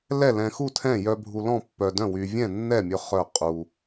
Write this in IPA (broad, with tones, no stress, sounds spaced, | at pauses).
l ɛ˥˨ l ɛ̃˧ x u˥˨ tʰ ɛ̃˥˨ j œ˧ bʱ u˧ l ɔ̃˥˨ pː œ˧ d œ̃˥˨ w y˧ vʲ ɛ̃˥˨ nː ɛ˥˨ mʲ ɵ˧ χ œ˥˨ qʼ u˧